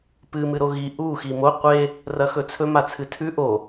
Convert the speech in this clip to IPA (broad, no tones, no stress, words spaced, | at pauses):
pɨ mɨɾoɣi ʔu ximo qʷe | rɐxɵt͡sʰɵ mat͡sʰɨtʰʉ ʔo